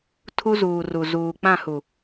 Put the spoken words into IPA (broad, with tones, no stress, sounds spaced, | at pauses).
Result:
tʰ u˦ z uː˨ r u˨ z uː˨ k͡p ã˦˨ h u˨